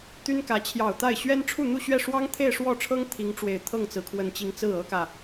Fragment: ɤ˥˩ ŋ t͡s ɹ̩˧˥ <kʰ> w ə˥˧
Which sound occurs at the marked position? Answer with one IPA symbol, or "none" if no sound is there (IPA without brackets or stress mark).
kʰ